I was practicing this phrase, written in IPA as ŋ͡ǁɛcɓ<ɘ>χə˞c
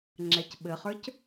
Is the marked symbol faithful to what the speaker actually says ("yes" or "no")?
yes